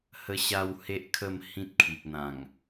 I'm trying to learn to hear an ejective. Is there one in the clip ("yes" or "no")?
no